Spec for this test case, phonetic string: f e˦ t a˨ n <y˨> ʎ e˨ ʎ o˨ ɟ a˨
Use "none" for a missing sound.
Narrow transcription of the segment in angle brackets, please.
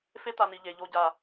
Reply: i˨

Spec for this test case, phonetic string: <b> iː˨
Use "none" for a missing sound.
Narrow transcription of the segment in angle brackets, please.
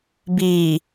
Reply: b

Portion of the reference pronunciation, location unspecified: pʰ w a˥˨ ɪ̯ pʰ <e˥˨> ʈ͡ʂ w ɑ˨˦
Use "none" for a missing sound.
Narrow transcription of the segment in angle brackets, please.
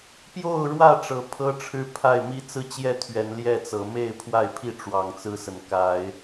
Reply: i˥˨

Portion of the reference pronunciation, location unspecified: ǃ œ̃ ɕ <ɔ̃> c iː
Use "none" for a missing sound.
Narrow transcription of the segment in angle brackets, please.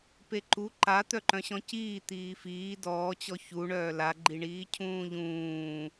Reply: ɔ̃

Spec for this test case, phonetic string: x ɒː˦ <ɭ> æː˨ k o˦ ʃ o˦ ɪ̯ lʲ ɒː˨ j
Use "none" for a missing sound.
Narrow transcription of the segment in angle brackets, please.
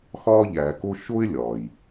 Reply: ʎ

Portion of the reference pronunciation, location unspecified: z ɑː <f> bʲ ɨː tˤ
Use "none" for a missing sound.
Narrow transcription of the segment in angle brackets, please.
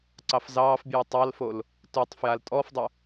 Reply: f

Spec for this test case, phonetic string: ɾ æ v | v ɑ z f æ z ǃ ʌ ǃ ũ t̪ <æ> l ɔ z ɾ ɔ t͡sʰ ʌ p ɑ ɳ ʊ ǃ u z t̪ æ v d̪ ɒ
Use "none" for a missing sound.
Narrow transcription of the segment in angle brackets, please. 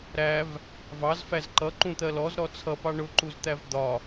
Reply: ɜ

